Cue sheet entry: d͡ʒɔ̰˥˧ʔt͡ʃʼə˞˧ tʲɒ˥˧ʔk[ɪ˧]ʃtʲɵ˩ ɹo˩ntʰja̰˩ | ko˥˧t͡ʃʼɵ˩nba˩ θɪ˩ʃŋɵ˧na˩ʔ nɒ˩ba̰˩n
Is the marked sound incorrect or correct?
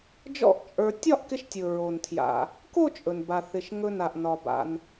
correct